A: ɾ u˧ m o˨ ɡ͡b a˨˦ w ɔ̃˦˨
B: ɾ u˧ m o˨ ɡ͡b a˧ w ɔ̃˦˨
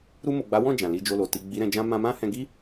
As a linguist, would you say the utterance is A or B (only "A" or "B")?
A